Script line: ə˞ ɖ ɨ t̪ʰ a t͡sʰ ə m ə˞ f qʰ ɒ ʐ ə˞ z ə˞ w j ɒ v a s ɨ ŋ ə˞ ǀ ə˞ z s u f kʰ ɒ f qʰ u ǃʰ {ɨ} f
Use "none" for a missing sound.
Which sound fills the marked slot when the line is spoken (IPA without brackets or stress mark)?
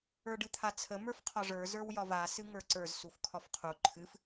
ɨ